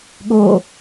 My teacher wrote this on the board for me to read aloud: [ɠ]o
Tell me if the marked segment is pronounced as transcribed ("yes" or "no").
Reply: yes